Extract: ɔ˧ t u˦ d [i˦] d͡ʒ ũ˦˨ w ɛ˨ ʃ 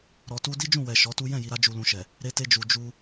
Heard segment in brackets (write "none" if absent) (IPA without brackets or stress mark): i˦